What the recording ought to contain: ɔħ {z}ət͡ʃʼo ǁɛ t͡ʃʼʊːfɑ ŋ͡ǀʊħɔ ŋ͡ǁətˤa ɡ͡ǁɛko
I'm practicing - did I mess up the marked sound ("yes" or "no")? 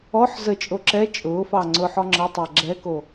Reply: no